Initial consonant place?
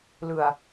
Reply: alveolar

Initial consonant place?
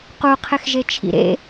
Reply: uvular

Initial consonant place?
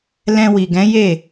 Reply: alveolar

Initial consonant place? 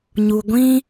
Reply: palatal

